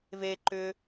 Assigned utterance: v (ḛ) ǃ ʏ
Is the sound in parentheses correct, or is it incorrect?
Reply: incorrect